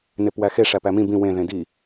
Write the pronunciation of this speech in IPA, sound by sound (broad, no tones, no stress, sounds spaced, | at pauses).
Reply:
n e p w æ x e ʂ æ p æ m ĩ b ĩ w ẽ ð ẽ d i